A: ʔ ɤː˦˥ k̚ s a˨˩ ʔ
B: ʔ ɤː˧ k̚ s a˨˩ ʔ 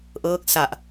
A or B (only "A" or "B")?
A